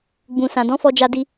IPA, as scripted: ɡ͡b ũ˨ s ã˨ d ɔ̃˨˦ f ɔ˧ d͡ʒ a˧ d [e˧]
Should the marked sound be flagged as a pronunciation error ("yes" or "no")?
yes